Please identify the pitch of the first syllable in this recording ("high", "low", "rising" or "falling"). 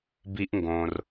high